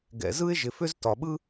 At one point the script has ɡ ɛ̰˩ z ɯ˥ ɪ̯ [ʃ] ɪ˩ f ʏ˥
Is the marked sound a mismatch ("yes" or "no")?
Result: yes